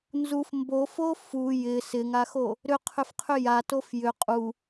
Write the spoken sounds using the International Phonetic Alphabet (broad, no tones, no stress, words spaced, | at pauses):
nzuf mbofo fu jɪ sɪŋaxo | ɾʏqʰʏfqʰʏ jatof jʏ qʼu